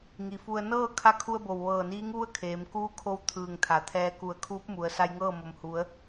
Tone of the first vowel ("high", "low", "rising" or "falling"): low